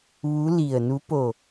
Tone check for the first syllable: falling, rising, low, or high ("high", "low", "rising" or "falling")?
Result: rising